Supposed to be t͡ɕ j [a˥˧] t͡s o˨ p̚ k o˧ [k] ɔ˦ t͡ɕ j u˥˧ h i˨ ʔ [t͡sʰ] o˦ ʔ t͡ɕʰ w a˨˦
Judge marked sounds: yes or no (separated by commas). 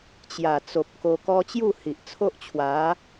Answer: no, yes, yes